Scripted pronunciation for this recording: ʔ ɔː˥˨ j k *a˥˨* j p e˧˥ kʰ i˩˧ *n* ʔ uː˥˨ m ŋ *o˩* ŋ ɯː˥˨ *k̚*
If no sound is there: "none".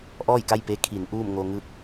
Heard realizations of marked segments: a˥˨, n, o˧, k̚

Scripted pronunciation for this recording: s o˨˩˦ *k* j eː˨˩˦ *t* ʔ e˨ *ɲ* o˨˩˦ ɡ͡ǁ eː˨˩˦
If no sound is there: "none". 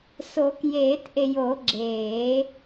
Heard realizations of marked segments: k, t, j

